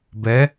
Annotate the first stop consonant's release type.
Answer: plain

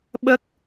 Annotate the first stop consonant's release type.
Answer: implosive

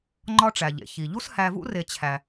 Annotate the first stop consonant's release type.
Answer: click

